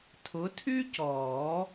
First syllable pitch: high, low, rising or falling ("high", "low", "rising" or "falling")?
rising